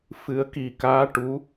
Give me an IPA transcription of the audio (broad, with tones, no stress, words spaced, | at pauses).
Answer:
fɨ˨˩˦ə̯ki˨˩kaː˧˥ ʈu˧˥